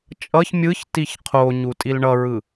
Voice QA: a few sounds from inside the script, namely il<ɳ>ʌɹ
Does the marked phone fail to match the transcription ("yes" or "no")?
no